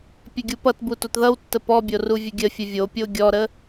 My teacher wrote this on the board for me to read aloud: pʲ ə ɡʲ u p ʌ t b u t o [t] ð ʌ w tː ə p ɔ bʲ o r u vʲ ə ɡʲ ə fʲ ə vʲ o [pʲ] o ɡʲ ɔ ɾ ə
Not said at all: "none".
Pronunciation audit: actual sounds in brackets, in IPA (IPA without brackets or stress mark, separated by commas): t, pʲ